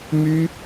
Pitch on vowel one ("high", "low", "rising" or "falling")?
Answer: high